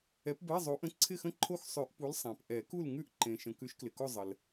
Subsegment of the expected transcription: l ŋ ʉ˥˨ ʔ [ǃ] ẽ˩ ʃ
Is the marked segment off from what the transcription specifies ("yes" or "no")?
no